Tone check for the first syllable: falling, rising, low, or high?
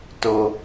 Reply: high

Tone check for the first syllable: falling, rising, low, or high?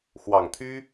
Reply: low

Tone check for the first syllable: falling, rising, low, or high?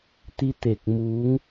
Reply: rising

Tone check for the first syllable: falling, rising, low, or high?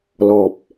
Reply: low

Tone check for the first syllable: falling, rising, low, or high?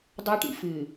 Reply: high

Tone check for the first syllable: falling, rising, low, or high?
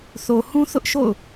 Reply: low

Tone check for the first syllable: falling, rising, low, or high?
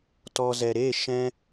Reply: low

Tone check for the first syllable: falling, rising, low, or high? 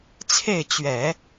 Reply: falling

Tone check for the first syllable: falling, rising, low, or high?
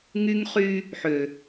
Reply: high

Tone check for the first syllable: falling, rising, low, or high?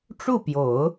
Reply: falling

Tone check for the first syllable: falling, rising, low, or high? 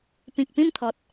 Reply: low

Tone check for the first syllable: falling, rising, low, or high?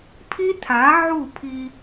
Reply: high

